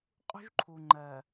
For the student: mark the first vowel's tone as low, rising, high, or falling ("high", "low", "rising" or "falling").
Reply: high